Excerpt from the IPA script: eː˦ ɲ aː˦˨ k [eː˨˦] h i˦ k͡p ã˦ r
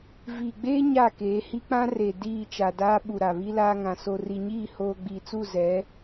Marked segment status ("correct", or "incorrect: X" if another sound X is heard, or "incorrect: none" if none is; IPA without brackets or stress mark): correct